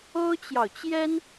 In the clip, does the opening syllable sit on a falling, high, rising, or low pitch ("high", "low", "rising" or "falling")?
high